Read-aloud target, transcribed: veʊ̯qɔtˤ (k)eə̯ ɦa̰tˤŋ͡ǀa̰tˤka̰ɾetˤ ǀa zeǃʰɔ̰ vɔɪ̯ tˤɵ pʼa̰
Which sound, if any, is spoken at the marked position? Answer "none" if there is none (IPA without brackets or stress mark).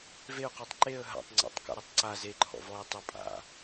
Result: ǃ